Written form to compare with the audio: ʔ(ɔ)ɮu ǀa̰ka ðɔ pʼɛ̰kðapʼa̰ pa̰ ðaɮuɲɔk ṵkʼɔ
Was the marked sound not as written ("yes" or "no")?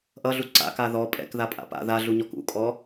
yes